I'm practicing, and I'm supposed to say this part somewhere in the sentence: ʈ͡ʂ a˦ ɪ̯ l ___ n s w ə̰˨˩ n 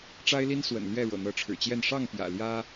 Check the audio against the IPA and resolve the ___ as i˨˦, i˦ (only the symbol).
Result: i˦